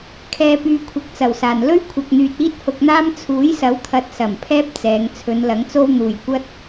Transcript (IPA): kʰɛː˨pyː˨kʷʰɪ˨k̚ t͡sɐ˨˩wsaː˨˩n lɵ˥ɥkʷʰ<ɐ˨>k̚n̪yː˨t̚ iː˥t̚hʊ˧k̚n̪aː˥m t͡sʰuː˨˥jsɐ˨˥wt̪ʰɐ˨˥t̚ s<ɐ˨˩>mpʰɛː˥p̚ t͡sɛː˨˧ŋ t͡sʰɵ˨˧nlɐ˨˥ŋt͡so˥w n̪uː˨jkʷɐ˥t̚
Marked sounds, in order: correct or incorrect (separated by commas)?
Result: correct, correct